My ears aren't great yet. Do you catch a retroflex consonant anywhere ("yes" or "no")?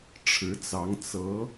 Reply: yes